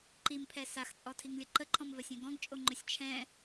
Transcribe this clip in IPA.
ǃ i m pʰ ɛ s a x t͡sʼ ɔ tʰ i ŋ lʲ ə ǃ ə ǃʰ ɔ̃ m v ɜ sʲ ɛ̃ ɡ ɔ̃ ɡ t͡ʃʼ o ŋ͡ǃ ɵ sʲ t͡ʃʰ ɛ̃

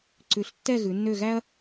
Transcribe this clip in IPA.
ǀ ʉ˩˧ ɬ tː ɛ˦˨ ɣ ʉ˩˧ nː ø˦˨ ɣ æ˥ ɐ̯

